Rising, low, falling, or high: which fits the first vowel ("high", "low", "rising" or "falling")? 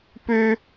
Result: high